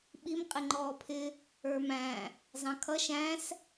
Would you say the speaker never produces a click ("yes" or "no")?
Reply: no